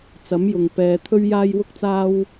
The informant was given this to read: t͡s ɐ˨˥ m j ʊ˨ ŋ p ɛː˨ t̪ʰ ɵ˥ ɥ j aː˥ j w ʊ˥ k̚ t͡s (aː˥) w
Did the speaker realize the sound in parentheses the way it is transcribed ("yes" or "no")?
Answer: yes